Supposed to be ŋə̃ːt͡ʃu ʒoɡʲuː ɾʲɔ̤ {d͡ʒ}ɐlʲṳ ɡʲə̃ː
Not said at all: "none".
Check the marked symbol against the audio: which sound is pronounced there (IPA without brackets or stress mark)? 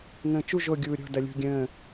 d